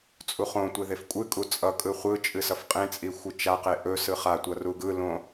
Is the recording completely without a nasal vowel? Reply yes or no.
no